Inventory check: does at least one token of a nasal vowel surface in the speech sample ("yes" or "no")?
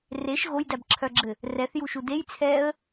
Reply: no